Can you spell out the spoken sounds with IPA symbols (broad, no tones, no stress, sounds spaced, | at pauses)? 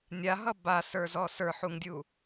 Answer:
nʲ a ɦ ʌ b a s ə˞ z ɔ s ə˞ ħ u ŋ dʲ u